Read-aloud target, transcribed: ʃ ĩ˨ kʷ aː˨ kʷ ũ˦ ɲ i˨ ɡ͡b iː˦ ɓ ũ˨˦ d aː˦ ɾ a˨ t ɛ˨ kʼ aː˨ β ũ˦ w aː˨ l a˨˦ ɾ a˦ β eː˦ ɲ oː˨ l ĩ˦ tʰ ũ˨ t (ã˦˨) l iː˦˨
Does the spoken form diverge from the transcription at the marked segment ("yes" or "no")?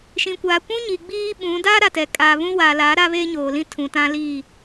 yes